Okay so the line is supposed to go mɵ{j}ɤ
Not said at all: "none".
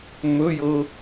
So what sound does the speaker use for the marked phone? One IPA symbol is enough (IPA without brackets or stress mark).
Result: j